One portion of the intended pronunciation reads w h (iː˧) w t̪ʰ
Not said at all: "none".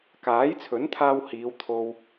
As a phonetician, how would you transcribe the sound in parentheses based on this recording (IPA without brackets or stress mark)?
iː˨˧